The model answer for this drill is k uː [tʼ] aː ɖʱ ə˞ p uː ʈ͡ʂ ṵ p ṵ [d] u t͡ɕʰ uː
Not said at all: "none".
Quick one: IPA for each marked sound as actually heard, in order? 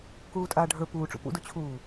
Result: tʼ, d

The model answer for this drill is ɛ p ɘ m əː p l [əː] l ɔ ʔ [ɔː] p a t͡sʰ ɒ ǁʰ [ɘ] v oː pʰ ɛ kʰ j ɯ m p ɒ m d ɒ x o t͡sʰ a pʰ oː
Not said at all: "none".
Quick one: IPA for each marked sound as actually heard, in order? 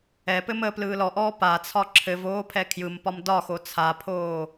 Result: ɯː, ɔː, ɘ

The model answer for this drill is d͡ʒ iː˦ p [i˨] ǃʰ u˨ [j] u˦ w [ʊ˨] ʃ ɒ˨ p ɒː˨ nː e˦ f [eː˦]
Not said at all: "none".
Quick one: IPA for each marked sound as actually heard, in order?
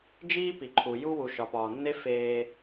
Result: i˨, j, u˨, eː˦

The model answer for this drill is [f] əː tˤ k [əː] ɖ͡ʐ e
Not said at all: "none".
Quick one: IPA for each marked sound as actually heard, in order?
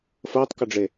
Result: f, ə

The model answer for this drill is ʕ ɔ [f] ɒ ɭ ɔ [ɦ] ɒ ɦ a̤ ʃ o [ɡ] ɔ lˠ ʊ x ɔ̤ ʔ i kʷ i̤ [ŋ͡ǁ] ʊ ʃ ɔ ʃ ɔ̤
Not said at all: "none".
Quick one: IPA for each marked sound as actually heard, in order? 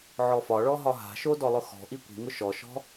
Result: f, ɦ, d, ŋ

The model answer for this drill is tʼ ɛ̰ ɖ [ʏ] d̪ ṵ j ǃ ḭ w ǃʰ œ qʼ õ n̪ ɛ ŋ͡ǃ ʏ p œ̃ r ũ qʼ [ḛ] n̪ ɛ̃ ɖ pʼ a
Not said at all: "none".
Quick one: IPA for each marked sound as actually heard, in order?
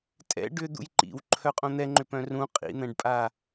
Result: ʏ, ḭ

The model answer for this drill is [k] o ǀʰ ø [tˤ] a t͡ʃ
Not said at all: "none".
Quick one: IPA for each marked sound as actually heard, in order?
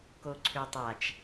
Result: k, tˤ

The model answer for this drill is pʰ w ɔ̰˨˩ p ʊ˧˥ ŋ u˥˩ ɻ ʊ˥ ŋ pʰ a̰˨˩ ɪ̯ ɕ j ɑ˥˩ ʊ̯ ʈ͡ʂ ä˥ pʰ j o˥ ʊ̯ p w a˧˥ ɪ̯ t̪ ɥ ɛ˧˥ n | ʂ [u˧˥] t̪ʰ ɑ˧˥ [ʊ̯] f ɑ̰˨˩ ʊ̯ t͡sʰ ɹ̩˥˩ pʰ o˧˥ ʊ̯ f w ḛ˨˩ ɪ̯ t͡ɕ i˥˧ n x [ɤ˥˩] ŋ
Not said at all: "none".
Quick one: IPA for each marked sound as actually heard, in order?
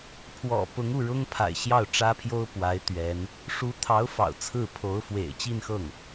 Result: u˧˥, ʊ̯, ɤ˥˩

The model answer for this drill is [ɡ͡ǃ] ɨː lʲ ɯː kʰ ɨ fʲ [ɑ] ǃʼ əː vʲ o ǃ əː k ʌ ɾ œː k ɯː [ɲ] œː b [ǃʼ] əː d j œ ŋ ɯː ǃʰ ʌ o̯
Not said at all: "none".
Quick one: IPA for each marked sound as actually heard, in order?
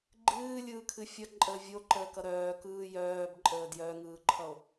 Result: ɡ͡ǃ, ʌ, j, ǃʼ

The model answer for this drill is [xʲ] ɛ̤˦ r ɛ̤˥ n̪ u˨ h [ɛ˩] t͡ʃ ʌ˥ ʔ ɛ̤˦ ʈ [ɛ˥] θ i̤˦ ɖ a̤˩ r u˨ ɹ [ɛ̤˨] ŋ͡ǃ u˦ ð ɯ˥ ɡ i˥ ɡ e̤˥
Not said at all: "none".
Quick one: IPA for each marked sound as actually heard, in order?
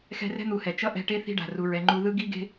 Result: x, ɛ˩, e˥, ɛ˨

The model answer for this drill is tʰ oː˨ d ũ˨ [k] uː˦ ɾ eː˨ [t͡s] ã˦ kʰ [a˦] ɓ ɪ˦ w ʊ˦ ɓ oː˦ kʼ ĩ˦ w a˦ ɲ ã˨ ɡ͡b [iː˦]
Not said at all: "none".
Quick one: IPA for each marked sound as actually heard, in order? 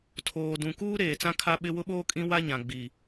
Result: k, t͡s, a˦, iː˨

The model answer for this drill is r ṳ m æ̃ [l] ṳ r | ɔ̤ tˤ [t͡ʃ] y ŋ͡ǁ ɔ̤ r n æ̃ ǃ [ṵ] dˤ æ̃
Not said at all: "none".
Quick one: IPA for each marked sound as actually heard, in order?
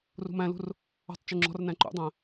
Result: l, t͡ʃ, ṵ

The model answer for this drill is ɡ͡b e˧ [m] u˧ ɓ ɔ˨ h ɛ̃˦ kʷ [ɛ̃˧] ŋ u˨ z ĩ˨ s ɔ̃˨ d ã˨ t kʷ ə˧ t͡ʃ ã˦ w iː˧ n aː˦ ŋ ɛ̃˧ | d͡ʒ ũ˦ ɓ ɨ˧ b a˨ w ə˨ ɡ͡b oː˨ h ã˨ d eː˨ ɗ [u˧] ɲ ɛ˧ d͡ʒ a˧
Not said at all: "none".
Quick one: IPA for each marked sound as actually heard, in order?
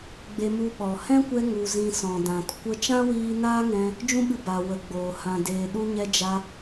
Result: m, ɛ˧, u˧

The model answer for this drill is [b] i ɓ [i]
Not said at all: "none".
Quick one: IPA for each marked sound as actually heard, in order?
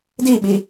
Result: d, i

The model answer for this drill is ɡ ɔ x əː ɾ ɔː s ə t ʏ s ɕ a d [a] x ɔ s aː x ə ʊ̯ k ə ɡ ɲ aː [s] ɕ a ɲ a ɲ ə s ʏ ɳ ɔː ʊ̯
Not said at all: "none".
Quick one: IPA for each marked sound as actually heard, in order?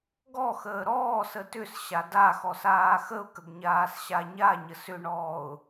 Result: a, s

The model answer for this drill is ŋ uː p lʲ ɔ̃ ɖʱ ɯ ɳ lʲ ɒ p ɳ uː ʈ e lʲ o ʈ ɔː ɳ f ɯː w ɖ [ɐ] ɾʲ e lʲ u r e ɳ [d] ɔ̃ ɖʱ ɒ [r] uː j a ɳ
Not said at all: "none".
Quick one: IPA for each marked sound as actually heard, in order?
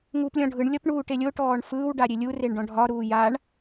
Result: a, ɖ, ɾ

